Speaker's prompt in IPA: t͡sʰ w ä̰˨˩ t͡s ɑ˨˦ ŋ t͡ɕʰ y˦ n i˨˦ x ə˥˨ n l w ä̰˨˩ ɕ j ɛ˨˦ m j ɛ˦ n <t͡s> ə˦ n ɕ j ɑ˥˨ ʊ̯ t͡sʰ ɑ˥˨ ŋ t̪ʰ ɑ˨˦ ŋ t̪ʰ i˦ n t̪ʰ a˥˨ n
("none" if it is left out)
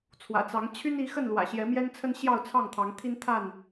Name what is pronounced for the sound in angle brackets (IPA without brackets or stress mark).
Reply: t͡sʰ